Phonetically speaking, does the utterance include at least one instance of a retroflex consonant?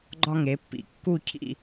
no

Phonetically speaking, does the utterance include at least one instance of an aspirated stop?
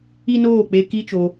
no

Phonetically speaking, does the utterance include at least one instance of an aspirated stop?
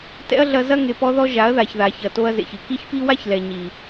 no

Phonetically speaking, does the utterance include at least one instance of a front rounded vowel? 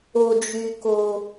yes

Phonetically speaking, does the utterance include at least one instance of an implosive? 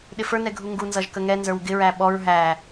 yes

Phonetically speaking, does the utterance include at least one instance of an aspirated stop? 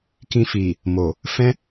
no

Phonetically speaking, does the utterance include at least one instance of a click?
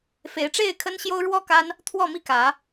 no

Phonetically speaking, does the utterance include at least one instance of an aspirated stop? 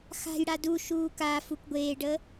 no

